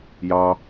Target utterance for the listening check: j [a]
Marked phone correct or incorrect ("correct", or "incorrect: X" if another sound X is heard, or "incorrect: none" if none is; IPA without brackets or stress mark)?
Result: incorrect: ɑ